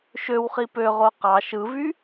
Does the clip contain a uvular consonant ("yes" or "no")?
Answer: yes